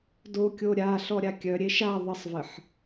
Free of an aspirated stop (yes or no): yes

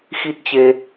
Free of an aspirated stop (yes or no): yes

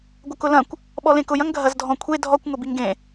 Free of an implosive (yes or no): no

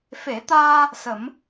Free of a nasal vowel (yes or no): yes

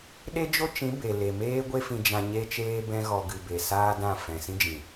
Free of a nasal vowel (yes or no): no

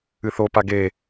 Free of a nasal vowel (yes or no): yes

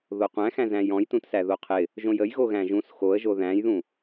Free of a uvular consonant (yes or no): no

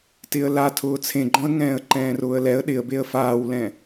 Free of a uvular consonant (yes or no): yes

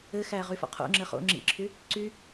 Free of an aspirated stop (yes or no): no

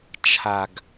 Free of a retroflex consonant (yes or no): yes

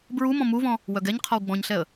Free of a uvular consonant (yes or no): no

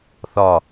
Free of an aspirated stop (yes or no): yes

